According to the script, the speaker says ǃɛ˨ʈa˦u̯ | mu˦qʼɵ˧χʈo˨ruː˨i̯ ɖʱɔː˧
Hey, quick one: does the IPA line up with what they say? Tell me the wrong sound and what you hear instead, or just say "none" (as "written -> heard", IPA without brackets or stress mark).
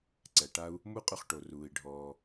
ǃ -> ǀ